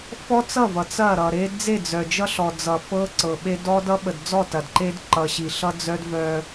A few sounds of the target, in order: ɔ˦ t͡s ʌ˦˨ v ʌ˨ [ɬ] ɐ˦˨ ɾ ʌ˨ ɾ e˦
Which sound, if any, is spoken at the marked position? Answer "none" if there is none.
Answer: t͡s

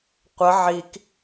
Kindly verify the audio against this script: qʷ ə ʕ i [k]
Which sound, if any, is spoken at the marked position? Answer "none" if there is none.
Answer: k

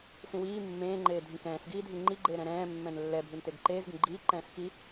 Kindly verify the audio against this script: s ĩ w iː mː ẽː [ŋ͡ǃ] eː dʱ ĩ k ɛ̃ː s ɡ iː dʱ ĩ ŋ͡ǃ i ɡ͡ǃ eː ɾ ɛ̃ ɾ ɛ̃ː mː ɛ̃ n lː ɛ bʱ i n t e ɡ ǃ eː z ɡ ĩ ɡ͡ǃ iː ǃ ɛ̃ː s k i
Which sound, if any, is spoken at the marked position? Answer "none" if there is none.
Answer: ŋ͡ǃ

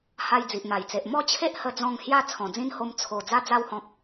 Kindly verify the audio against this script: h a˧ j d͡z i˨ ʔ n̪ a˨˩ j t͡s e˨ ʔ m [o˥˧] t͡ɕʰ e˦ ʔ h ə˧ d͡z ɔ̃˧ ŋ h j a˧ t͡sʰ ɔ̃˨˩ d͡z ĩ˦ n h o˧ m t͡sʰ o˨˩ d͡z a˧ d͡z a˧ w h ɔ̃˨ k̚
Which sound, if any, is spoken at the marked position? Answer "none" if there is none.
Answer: ɔ˥˧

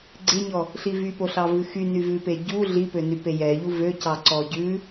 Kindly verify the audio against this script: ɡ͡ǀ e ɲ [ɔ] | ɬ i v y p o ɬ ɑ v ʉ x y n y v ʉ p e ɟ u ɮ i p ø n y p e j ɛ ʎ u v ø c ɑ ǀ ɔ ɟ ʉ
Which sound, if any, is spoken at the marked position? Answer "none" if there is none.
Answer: ɔ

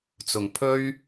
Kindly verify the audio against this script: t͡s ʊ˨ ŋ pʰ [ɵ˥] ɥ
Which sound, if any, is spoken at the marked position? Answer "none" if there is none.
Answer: ɵ˥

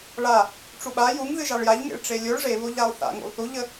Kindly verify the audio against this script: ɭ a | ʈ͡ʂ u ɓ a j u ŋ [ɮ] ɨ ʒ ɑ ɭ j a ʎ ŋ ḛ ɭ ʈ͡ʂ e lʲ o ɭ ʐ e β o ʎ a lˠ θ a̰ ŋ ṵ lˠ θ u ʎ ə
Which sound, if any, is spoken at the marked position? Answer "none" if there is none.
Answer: ð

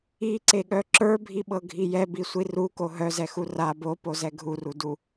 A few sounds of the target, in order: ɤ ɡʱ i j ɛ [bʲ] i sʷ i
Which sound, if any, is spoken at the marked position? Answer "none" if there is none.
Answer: b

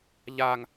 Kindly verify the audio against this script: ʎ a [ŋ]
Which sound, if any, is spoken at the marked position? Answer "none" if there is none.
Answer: ŋ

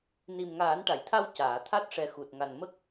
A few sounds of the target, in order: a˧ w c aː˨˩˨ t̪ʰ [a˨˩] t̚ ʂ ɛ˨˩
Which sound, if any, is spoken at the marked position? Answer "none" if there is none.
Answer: a˦˥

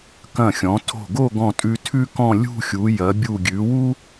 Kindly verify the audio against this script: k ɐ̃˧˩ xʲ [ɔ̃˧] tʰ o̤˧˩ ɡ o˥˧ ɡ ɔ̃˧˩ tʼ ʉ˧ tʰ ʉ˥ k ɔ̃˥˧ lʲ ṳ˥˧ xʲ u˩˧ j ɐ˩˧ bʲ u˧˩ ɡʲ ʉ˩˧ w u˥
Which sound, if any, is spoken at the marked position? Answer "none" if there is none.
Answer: ɔ̃˩˧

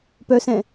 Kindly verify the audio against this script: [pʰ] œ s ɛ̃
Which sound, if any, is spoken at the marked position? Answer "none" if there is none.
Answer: p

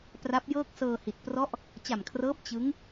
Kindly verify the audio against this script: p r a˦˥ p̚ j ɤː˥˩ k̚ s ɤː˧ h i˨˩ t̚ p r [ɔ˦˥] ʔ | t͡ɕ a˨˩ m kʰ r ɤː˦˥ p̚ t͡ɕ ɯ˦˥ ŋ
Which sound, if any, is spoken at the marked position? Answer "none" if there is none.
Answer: ɔ˦˥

